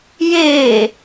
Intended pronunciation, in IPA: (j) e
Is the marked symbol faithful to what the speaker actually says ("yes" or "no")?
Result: yes